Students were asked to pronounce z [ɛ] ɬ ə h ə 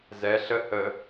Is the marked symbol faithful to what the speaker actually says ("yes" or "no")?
yes